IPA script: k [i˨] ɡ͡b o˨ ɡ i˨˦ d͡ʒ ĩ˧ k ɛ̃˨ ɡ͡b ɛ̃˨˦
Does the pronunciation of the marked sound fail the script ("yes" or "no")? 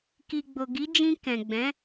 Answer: no